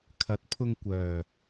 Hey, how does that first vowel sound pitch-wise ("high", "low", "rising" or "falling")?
rising